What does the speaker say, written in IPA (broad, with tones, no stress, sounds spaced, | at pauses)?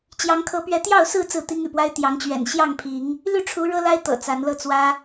t͡ɕ j ɑ˨˦ ŋ kʰ ɤ˨˦ p ɥ ɛ˨˦ t̪ j ɑ˥˨ ʊ̯ s ɹ̩˥˨ t͡s ɹ̩˥˨ t̪ i˦ ŋ y̰˨˩ p w a˦ ɪ̯ t̪ j ɑ˨˦ ŋ t͡ɕ ɥ ɛ̰˨˩ n ɕ j ɑ˥˨ ŋ pʰ i˨˦ ŋ | l y˥˨ ʈ͡ʂʰ u˨˦ ɻ ɤ˦ l a˦ ɪ̯ t̪ ɤ̰˨˩ t͡s a˨˦ n l ɤ˥˨ t͡s w ä˦